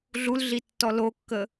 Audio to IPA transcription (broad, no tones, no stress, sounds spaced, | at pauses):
ɮ u l ɮ i tː ɔ l o kː ə